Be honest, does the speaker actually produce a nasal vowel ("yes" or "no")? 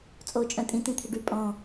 yes